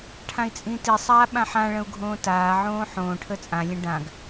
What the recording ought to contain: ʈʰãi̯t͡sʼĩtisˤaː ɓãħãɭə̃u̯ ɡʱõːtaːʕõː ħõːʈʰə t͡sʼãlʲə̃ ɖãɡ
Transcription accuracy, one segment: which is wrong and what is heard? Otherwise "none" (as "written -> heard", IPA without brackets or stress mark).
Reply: none